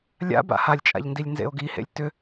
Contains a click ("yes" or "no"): no